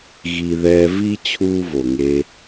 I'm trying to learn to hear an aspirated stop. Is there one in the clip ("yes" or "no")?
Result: yes